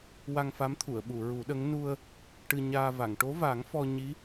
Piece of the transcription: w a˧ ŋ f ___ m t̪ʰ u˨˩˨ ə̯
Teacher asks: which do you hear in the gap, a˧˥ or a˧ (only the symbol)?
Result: a˧˥